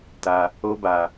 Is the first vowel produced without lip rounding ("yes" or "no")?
yes